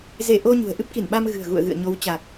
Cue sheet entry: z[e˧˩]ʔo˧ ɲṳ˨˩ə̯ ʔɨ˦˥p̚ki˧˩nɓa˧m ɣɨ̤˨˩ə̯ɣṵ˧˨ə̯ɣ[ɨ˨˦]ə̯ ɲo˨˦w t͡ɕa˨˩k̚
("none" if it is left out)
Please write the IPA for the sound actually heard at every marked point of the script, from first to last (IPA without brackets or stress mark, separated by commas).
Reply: e˧˩, ɨ̰˧˨